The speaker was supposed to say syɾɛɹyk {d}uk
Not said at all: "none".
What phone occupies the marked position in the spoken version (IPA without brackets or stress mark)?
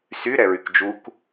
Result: d͡ʒ